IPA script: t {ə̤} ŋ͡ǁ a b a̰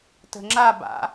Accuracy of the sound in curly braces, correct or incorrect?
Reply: correct